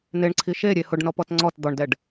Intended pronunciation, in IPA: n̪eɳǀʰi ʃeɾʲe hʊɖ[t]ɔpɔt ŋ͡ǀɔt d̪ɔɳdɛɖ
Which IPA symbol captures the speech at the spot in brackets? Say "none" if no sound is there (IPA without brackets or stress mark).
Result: n